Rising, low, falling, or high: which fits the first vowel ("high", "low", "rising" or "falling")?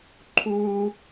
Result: high